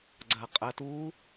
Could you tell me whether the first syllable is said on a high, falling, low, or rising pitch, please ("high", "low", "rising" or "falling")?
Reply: low